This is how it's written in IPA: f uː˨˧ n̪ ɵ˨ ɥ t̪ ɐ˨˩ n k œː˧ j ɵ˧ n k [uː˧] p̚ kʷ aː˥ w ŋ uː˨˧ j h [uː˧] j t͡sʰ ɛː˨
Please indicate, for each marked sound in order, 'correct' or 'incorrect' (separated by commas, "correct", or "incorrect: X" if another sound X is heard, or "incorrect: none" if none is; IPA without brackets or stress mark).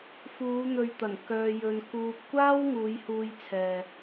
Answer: correct, correct